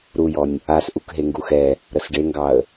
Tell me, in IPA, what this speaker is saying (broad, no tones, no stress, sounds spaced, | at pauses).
ɾ u j ɔ nʲ | a s ʔ u k ɦ e ŋ ɡ u x ɛ | ɾ ə s ɖ e ŋ ɡ ɑ ə̯